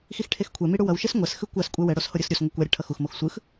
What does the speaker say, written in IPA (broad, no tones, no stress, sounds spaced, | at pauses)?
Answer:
x i x ʈʰ e x kʷʰ ɛ m i ɽ u w ʌ w ʃ e s ŋʷ ɛ s x ɯ kʷ a s kʷʼ ɛ w ɛ ɽ o s h o ɾʲ ɯ s ɾʲ u s ŋʷ i kʷ a ɾʲ ɯ ʈʰ ʌ x u x m o x sʷ ɯ x